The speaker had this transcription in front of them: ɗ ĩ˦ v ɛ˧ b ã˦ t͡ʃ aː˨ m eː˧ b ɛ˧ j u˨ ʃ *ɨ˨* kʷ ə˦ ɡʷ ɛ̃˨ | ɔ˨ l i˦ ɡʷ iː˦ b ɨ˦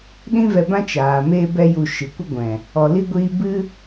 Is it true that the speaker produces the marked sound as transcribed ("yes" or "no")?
yes